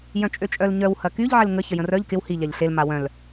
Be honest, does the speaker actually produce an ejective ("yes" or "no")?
yes